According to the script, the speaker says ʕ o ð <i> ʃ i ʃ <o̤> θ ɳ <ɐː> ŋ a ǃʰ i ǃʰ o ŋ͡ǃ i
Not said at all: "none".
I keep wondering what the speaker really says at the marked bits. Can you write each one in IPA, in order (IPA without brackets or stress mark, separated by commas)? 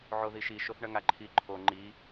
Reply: i, o, ɐ